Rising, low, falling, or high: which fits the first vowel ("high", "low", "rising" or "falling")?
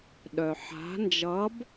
low